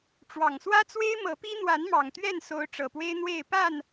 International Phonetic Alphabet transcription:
ʈ͡ʂ w ɑ˨˩ ŋ s w ä˦ t͡s w e˦ ɪ̯ m ɤ˨˦ p i˦ n̪ w a˨˦ n m ɑ˨˩ ŋ t̪ ɥ ɛ˥˨ n s o˨˦ ʊ̯ ʈ͡ʂ ɤ˨˩ p w e˦ ɪ̯ n̪ w e˥˨ ɪ̯ p a˥˨ n

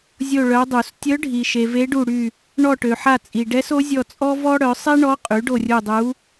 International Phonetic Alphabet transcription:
zʲ o˦˨ ɭ œ˧˥ dˤ u˨˩˦ s tʲ œ˧˥ ɖʱ i˨ ʃ e˨ v e˧˥ ɖ u˦˨ ɽ y˦˨ | ɳ ɔ˦˨ ʈ ø˨ ħ a˦˨ t͡sʼ i˨ ɖ ɛ˧˥ s o˧˥ zʲ ɔ˦˨ t͡sʼ ɔ˥ v ɔ˥ ɽ œ˩˥ sˤ e˥ ɳ ɔ˧˥ qʼ y˩˥ ɖ o˦˨ rʲ u˦˨ dˤ u˧˥

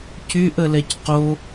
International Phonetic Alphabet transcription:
c y ʔ ə l ɛ c q o

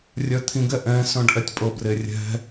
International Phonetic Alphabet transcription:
rʲ œ t̪ʰ ĩ ɡ ɛ ʔ ɛ̃ s œ̃ ɖ ʔ ɛ tʲ pʼ ɤ b r e rʲ ɛ̤

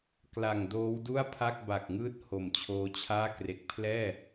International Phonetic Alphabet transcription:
k l a˨˩ ŋ d oː˦˥ w d u˥˩ a̯ pʰ a˥˩ k̚ b a˨˩ k̚ ŋ ɯː˥˩ t̚ h o˨˩ m t͡ɕʰ oː˦˥ t͡ɕʰ aː˥˩ k r e˨˩ k̚ pʰ l ɛː˥˩

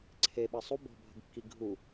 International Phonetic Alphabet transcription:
ǀʰ e ɓ ə sˤ u b ɔ̤ bʱ ə̤ ɡ kː i ɡʱ u

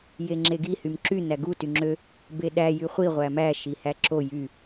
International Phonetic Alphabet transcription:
j e ŋ͡ǁ e ɡ i h y m ǁ y n æ ɡ u t y ŋ͡ǁ ø | b e ɗ æ j y χʷ i ʁʷ æ m æ ʃ i h æ ǁ o j y

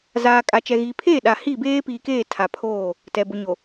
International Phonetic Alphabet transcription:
z aː˨ kʼ a˨ t͡ʃ ɛ˨ ɣ iː˨ pʰ eː˦˨ ɗ a˨ h i˦˨ b eː˦ p iː˨ k eː˦˨ tʰ a˨ pʰ oː˦˨ | t ɛ˨ b ʊ˨ ɲ o˨

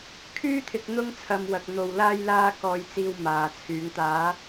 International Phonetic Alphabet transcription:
kʰ yː˥ t̪ʰ ɪ˧ k̚ n̪ ʊ˧ ŋ t͡sʰ ɐ˨ m w ɐ˨ k̚ n̪ o˨ w l aː˧ j l aː˧ k ɔː˨ j t͡s iː˨ w m aː˨ t͡sʰ yː˨˧ ŋ t̪ aː˨˧

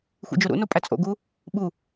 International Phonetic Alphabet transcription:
xʷ ḭ d͡ʒ o ɾ ṵ n o pʼ æ t͡sʼ o̰ ɡ u | ɓ u

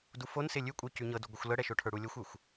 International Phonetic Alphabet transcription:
d u f o n s ɪ lʲ ʉ kʷʼ ə˞ c ʉ ɲ ɤ d u ɡʷ ə xʷ l ɤ ɽ ɛ ʃ o ʈʰ ə˞ ɽ u lʲ ɤ xʷ ə˞ xʷ

